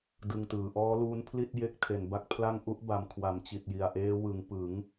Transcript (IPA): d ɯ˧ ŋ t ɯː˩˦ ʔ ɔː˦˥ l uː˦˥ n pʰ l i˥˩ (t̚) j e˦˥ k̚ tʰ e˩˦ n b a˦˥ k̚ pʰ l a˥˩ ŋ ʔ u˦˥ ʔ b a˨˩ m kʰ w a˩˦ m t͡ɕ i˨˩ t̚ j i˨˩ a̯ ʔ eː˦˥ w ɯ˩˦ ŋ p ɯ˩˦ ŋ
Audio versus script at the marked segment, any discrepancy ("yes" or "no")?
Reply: no